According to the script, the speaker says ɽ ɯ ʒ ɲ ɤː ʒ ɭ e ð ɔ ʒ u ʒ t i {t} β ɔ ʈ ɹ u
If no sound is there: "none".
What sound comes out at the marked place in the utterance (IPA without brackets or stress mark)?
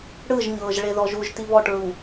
none